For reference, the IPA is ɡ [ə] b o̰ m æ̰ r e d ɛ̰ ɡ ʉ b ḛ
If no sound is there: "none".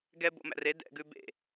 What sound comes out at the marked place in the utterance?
ɛ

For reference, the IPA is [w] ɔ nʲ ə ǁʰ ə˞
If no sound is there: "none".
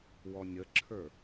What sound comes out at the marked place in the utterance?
w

